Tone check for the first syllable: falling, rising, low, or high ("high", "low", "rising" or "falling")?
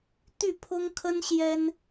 falling